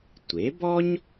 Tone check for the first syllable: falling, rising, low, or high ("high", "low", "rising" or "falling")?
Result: rising